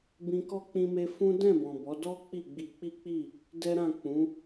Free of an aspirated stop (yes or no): yes